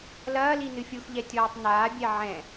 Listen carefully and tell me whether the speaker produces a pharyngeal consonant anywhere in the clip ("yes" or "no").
yes